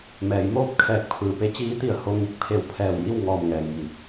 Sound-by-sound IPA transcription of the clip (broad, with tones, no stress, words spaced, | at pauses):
mɛː˩˧jmoː˥˨p̚ kʰɛː˧˩k̚pʰɯː˩pe˧˥ t͡ɕiː˧˥t̪i˧˩ə̯ ho˧ŋi˧˩k̚ pʰe˧˩wpʰɛː˧˩wji˥˨w ŋɔː˧˩mŋɛː˩ŋji˩˧